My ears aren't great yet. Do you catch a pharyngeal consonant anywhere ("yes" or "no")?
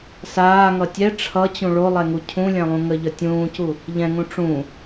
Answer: no